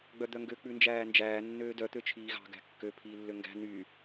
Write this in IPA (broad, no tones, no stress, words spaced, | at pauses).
ɡ͡bœd̪œŋɡø k͡pʉnd͡ʒæːnd͡ʒæː nːøːdœ t̪øt͡ʃʰiːɣɑ̤ ɡæ̤kːø pʰiːlːøŋɡæ̤ ny